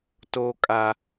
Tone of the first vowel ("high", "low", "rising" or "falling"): high